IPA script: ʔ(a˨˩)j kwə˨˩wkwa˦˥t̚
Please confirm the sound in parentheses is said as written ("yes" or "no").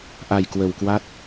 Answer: yes